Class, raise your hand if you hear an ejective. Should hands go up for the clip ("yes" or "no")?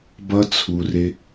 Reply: no